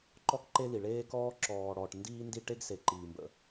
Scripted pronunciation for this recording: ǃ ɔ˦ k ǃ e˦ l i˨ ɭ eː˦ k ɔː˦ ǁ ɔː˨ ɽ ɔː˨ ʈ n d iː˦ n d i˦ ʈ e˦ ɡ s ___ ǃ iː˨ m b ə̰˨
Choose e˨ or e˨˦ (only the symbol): e˨